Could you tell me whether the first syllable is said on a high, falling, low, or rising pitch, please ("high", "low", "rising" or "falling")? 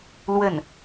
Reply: falling